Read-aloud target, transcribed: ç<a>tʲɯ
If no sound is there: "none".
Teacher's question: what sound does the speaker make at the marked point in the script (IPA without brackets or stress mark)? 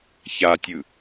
a